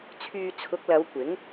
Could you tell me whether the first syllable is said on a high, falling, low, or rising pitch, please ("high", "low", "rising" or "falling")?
low